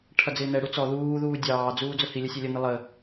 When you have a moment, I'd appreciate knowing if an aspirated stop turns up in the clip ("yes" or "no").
yes